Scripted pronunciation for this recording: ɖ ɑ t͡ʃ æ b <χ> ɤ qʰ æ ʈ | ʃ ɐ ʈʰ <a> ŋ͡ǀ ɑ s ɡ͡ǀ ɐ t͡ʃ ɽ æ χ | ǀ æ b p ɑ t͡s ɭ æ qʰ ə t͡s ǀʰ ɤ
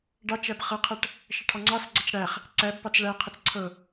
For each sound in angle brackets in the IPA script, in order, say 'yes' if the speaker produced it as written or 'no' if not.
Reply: yes, no

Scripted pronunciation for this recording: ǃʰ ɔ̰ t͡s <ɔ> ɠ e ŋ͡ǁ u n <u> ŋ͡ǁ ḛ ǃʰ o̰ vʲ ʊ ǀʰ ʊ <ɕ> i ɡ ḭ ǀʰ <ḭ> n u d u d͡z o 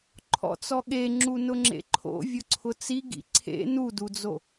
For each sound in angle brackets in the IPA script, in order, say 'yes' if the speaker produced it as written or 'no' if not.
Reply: yes, no, no, no

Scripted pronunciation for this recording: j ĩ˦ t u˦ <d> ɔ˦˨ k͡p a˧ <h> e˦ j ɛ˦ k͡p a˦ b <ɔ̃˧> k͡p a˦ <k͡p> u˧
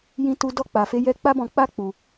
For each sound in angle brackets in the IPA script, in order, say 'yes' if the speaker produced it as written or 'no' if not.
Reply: yes, no, yes, yes

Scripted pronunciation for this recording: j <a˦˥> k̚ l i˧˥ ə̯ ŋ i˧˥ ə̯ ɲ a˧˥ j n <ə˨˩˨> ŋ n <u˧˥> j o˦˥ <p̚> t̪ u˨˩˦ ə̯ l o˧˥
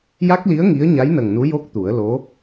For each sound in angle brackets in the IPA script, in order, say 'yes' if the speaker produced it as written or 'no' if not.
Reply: yes, no, yes, no

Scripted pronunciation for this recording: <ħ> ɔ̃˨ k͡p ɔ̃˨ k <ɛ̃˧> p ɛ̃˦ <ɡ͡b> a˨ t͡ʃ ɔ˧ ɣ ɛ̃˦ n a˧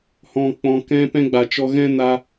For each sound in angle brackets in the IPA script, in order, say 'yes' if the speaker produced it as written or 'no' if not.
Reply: no, yes, yes

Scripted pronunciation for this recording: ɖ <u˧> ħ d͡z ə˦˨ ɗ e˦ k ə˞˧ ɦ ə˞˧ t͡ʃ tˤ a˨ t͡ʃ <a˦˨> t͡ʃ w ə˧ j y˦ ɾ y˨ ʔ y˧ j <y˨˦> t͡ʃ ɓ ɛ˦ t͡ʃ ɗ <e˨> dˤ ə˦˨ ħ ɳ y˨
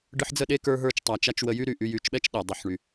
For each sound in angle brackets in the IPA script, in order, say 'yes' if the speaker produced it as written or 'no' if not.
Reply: no, no, yes, no

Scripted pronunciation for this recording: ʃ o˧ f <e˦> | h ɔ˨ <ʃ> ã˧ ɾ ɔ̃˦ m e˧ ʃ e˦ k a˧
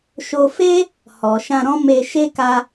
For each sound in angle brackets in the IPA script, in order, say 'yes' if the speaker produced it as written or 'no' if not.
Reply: yes, yes

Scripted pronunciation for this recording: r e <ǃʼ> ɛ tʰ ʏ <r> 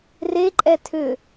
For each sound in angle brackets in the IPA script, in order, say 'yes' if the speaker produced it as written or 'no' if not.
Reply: yes, no

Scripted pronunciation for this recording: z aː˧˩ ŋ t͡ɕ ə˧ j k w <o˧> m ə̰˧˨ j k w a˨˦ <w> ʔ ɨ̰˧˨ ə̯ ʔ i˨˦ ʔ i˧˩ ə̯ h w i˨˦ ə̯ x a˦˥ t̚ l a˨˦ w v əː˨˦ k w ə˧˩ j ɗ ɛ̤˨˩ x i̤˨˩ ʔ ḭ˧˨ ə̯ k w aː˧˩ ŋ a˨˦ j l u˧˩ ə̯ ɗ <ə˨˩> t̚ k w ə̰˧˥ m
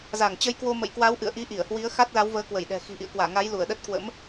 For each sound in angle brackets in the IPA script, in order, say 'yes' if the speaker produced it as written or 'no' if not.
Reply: yes, yes, no

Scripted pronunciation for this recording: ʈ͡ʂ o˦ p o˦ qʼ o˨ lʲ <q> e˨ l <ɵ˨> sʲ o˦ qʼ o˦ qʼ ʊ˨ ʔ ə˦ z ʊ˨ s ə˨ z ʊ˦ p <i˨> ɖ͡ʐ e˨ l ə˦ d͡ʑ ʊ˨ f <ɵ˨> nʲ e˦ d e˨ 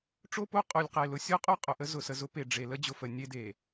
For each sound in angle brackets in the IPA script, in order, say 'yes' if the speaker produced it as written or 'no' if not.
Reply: yes, no, no, no

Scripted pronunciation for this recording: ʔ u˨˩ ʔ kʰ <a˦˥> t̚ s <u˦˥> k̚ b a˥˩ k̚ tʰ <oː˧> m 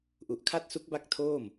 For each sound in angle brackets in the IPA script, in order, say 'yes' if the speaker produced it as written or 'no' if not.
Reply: yes, yes, no

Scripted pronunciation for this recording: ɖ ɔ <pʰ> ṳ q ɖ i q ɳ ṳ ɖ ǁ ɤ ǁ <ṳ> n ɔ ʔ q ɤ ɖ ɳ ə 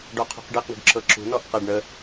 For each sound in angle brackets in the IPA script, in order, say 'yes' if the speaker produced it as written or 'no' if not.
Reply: no, yes

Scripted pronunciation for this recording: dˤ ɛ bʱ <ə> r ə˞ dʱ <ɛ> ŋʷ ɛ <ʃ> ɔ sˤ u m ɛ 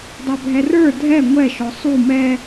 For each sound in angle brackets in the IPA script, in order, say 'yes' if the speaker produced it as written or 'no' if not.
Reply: no, yes, yes

